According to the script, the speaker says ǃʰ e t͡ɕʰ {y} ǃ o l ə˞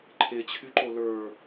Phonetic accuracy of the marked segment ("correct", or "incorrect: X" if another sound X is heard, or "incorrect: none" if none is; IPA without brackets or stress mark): correct